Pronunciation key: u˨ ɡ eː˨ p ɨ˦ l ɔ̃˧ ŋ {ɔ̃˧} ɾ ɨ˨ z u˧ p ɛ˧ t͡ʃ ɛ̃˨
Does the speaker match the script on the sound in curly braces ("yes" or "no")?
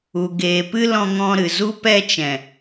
yes